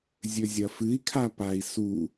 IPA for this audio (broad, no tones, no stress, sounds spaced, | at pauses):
zʲ ɵ zʲ ɐ f ɨ i̯ kʰ a p a i̯ s u